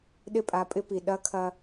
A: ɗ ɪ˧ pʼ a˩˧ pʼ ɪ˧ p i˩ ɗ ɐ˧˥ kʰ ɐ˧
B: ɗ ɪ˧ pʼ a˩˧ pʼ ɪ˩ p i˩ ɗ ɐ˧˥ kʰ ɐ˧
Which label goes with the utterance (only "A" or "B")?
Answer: A